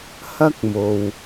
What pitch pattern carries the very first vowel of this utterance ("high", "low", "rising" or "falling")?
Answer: high